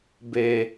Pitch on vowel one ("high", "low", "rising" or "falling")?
low